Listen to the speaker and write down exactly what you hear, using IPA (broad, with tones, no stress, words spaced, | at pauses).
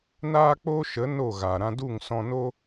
naː˦k͡poː˦ʃə˨˦ no˦˨ ɣaː˨ ɾã˧du˦˨ŋsɔ̃˧ no˦